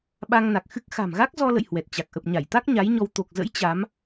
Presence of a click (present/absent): absent